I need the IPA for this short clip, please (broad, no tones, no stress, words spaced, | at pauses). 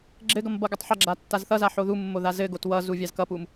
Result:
ɡ͡ǁɘɡʌm bʌɡʌtˤħʌɡ͡ǁa tːazθʌza ħoðumːo ðazɘɡot wʌzu vʲazkʌpum